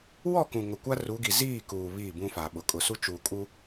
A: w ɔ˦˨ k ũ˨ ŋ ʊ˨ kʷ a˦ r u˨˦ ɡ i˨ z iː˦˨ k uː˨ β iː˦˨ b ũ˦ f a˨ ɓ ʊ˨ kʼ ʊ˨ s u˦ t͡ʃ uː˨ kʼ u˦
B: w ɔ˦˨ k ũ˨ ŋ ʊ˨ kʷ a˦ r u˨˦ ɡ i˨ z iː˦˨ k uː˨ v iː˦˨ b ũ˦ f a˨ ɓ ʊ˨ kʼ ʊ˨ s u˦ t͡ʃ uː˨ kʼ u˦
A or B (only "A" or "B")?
A